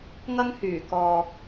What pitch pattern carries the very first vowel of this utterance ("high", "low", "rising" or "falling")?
high